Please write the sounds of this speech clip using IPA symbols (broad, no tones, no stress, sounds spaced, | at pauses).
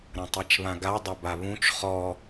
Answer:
ɾ ɐ̃ tˤ e t͡ʃ β ã ɡ a dˤ ɐ b a β ũ t͡ʃ χ ɔ